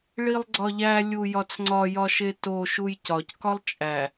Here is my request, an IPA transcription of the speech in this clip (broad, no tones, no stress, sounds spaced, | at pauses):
ɭ i lˠ ɡ͡ǀ ɒ ʎ æ lʲ u j ɒ t͡s ŋ͡ǀ ɒ j ɒ ʃ e t o ʃ u j c ɒ c k ɒ lˠ t͡ʃʼ æ